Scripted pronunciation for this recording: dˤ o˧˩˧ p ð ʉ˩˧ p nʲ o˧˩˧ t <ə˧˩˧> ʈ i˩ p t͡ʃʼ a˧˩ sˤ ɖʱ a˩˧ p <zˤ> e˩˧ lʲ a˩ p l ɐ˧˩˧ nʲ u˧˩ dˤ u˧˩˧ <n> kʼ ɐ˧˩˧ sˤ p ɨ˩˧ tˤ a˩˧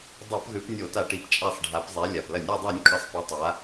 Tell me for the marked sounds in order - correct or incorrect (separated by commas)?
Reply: incorrect, correct, incorrect